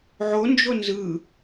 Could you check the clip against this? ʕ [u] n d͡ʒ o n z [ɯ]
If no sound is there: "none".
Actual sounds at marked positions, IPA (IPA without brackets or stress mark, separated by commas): o, ɯ